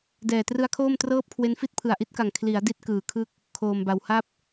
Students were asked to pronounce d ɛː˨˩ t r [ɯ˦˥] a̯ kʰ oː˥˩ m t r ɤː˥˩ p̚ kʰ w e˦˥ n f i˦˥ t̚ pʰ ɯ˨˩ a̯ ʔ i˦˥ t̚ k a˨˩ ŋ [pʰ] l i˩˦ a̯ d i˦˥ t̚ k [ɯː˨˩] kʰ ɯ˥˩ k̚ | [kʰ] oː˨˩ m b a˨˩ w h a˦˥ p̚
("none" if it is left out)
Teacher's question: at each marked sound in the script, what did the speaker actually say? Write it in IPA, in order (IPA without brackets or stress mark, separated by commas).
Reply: ɯ˦˥, kʰ, ɯː˨˩, kʰ